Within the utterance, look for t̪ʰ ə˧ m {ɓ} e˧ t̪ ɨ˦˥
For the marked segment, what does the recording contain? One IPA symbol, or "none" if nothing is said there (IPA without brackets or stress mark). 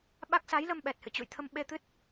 ɓ